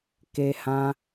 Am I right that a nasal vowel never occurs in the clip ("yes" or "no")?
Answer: no